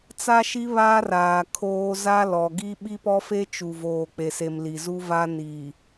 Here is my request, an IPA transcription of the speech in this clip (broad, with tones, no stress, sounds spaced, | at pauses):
t͡s a˦ ʃ i˦ β aː˦ r aː˨ kʰ oː˦ z a˦ l ɔ˨ ɡ i˦ ɓ i˦ p ɔ˦ f e˦ t͡ʃ u˨ v oː˨ k͡p e˨ s e˨ m l i˨ z u˦ v a˦ n i˨